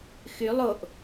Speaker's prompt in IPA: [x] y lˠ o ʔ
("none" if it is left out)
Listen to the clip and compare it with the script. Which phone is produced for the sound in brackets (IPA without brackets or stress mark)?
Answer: x